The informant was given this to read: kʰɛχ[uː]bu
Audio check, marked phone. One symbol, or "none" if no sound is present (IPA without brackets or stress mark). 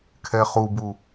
u